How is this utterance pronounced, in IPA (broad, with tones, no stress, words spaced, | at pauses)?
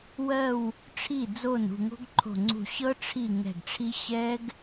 wɜ˧˩w | ʈ͡ʂʰi˧˩d͡zo˧˩n ṳ˧˩ŋo̤˦˥ɡǃʰo̤˧˩ŋ͡ǀṳ˧˩ ɕɤ˦˥ʈ͡ʂʰi˧˩ ŋɛ̤˧˩ɡʈ͡ʂʰi˦˥ ɕɛ˦˥ɡ